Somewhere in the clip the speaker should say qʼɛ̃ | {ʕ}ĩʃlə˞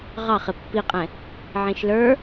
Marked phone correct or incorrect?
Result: correct